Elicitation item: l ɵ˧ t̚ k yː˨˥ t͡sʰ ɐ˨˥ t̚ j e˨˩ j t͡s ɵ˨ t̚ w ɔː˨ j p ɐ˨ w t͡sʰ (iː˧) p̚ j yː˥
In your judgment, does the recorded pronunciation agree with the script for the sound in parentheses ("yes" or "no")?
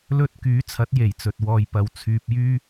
no